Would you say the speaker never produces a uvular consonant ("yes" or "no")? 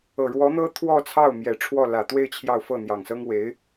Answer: yes